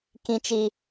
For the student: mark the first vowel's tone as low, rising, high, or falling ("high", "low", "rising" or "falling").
high